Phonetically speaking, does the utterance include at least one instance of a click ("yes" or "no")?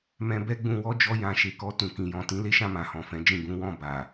no